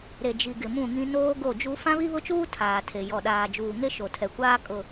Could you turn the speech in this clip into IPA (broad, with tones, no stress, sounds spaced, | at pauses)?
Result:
ɾ e˨ d͡ʒ i˨ ɡ ɪ˨ m ũ˦˨ ŋ ĩ˦ n oː˦ ɡ o˦˨ d͡ʒ u˦ f ã˦ β i˦ β ʊ˦ t͡ʃ uː˦ tʰ aː˨ tʰ e˨ j ɔ˨ ɗ aː˨ d͡ʒ uː˨ ŋ e˦ ʃ o˨ tʰ ɛ˨ kʷ aː˦ kʼ ʊ˨